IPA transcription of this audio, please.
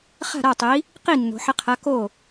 χ a̤˥˩ ɾ a˥˩ tˤ i˨˥ | q i˥˩ nː o̤˩˧ ħ ɪ˨˥ qʰ a˨˥ k o˥˩

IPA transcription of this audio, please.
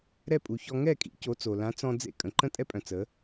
ɾ ɛ˥˩ pʼ u˩ ç ɔ˧ ŋ ɛ˥˩ kʼ ḭ˩˥ c o˩˥ t͡s o˩ l ã˩˥ t͡s ɔ̃˧ d͡z ḛ˥ kʼ ə̃˩ ǃ ə̃˥ tʼ ɛ˥ pʼ œ̃˩ t͡s ə˩˥

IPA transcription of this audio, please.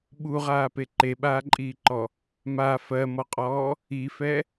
ɓ u ʁ aː p e ǃ e ɓ aː ǃʼ iː ǃ ɔ | m a f ɜ m ɔ qʼ ɔː | i f ɛ

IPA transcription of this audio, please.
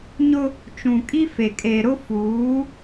ɲ ʊ˦ | t͡ʃ ũ˨ kʼ i˦ f e˨ kʼ e˨ ɾ ʊ˦ f uː˨˦

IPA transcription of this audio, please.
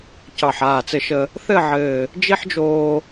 c ɑ˧˩ ħ aː˧˩ t͡s ɘ˧ ʃ ə˧ | θ ɘ˥˧ ʕ ɘː˧˩ | d͡ʒ i˥ ħ d͡ʒ oː˧

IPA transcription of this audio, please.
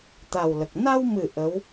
t̪ a˨˩ w l ə˨˩ k̚ n a˧ w m ɨ˨˩ ʔ ə˧˥ w

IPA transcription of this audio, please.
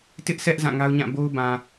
t ɪ˦ ʔ s ɛ˦ ʔ z ã˦˨ ŋ a˦ ʊ̯ ɲ ã˦˨ b o˦ ʊ̯ b ã˨

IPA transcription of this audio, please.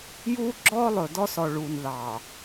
j uː˦ ɡ͡ǁ ɔː˦ lˠ ɵ˨ d ɔ˦ s ɔ˨ ɭ uː˨ n ð ɑː˨

